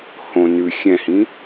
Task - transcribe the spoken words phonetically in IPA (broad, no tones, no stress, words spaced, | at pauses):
hõ nʉ xʲɛ̃hĩ